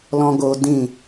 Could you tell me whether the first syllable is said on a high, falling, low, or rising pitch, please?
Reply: high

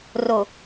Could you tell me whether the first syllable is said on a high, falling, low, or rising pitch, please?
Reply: low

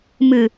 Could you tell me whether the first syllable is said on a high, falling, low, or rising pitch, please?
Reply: low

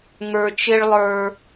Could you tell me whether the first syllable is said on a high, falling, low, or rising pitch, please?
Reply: low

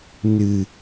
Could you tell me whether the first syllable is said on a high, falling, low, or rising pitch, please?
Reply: low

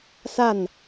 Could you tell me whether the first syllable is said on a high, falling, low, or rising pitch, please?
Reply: falling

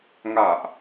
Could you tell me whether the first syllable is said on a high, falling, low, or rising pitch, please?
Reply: low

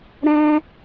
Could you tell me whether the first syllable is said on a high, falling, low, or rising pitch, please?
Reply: high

